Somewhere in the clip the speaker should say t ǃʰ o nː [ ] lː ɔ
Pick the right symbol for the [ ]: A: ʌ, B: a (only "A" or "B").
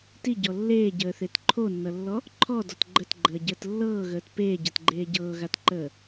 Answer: A